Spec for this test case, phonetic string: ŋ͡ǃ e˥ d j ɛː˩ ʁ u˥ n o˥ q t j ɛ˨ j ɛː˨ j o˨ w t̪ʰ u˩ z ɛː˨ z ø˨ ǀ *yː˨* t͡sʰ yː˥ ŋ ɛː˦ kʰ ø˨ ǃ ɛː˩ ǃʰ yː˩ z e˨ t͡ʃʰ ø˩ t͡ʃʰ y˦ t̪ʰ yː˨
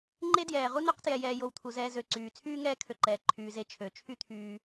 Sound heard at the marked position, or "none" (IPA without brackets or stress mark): yː˩